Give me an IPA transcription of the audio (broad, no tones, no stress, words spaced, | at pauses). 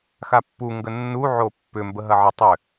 xapːu ŋɡənːu ʕopːʏ mbəɦɐʕɪ tˤʏ